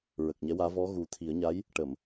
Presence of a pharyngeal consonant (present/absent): absent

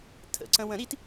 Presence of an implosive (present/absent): absent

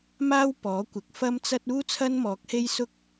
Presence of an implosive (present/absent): absent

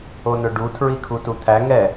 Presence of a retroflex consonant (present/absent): present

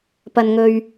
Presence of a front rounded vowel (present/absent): absent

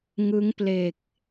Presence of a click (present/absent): absent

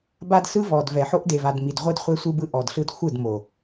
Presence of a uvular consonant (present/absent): present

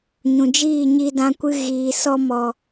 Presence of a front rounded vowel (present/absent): absent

